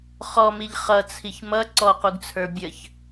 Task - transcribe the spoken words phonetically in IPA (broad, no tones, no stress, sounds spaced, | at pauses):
χ ɔ m i ʎ χ ʌ t͡sʰ i ç m ʌ ǀ ɔ q u ɡ t͡sʰ ə˞ bʲ ə ç